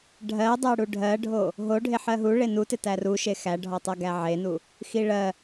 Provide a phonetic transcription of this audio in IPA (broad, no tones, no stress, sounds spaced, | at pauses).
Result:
ɖʱ ɜ dˤ ɜ ɽ u ɖʱ ɜ ɖʱ o | ɦ o ɖʱ e ħ ɜ ɦ u ɭ e n u t ɪ t æ r u ʃ e x æ ɖʱ ɔ tˤ ɜ ɡ æ ʕ e n u | x i ɭ ɜ